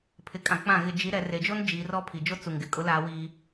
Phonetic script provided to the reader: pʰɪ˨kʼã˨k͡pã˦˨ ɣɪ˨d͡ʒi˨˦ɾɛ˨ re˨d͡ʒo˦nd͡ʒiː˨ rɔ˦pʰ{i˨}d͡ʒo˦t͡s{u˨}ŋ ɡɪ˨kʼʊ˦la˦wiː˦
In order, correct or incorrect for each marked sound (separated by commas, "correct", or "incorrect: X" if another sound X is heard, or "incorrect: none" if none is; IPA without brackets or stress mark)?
correct, correct